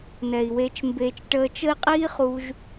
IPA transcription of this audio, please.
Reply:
n ɛ˨ i̯ w e˧ t͡ʃ m b eː˧ t͡ʃ ʈ əː˧ t͡ʃ ə˦ i̯ qʼ iː˦ χ u˧ ʒ

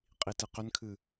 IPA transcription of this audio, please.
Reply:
qʼ i t ɨ q ʏ n kʰ ɨ

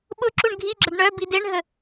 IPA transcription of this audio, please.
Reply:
ɓ ʊ ǁ u ɳ ɡʱ i ɡ͡ǁ ɐ ɖ ɳ œ b i d e ɳ ɦ ə

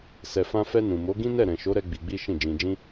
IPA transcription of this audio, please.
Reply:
s ɛ˨ f ã˧ f ɛ˧ n ũ˨ m o˨˦ ɡ ĩ˦ n ɛ˦˨ ɾ ɛ̃˨ ʃ o˨˦ ɾ ɛ˧ ɡ͡b i˧ ɡ͡b i˦ ʃ ĩ˦˨ d͡ʒ ĩ˧ d͡ʒ ĩ˦

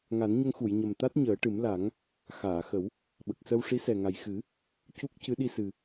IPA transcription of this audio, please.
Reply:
ŋ a˨˩˦ n ɲ ə˧ ŋ x u˨˩˨ j ɲ ə˨˩ m t̪ a˦˥ t̚ ɲ əː˨˩˦ ʈ ɨ˨˩˦ m l a˨˩˦ ŋ | x aː˨˩˨ x ə˨˩˦ w | ɓ ə˨˩ k̚ s ə˧ w ʂ i˧˥ s ɛ˨˩ ŋ a˨˩ j x ɨ˨˩˦ | c u˦˥ k̚ c ɨ˧˥ ɗ i˧ s ɨ˨˩

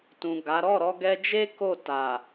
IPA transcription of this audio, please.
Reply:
t ũ˨ ɡ a˨˦ ɾ ɔ˦˨ ɾ ɔ˧ ɡ ɛ˧ d͡ʒ e˦ k o˦˨ t a˨

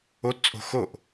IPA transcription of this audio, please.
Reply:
o t t͡sʼ o̤ x o ʔ

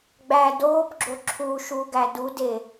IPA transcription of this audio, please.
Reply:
ɡ͡b æ d oː p ɡ͡ǁ o ǁʰ u ʃ u ɡ æ d u d eː

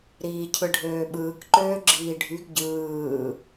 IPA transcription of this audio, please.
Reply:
ɾ iː cʰ ɯ ɖʱ øː ɓ ɯː k ǃ øː ɡ͡ǁ iː ɖʱ y ɡ ɟ ɯː

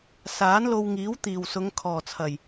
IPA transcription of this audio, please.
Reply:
s aː˨˥ n l o˧ w ŋ iː˨˥ w t̪ iː˨˩ w s ʊ˨˧ ŋ kʰ ɔː˨˩ t͡sʰ ɐ˨˩ j

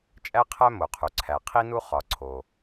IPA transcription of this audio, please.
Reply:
t͡ʃʼ æ˥ qʰ æ˥ m o˩ qʰ u˩ ǀʰ æ˩ qʰ i˥ n u˥ χ ɒ˩ ǀʰ o˩

